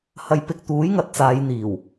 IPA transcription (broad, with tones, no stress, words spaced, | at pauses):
hɐ˧jpɪ˧k̚t̪uː˨˥jŋɐ˧t̚ t͡saː˨˧jn̪iː˨˩w